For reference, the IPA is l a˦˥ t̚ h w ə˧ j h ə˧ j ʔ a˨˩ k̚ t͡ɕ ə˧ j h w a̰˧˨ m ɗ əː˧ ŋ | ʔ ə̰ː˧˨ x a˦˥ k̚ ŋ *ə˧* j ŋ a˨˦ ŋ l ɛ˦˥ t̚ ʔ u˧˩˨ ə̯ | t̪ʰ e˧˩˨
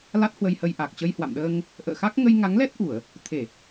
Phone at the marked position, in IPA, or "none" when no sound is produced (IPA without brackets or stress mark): ə˧